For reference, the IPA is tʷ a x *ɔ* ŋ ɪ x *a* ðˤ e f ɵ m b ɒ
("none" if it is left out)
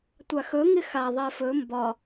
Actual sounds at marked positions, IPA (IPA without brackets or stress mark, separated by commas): ɵ, a